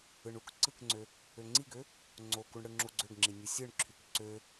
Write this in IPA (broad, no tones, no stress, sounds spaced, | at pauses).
ɯ ɳ u k ǀ ɯ k ŋ͡ǀ ø | ø ŋ͡ǀ i ɡ ø | ŋ͡ǀ o k u ɳ ɽ ɯ ŋ͡ǁ u ɡ͡ǀ ø ɡ ŋ͡ǁ i nʲ ɯ sʲ ɯ ɳ ǁʰ y k ǀ ø